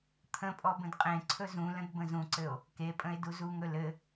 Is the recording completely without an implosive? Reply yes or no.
yes